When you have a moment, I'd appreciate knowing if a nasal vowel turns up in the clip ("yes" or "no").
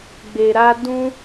yes